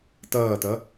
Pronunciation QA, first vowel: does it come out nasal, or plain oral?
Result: oral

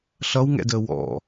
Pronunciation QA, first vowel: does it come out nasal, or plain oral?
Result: oral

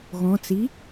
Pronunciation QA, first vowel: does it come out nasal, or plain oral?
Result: nasal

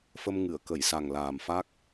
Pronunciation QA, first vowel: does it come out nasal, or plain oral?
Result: oral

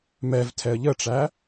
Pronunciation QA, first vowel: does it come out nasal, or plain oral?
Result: oral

